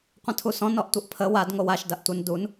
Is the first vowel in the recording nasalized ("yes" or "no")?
yes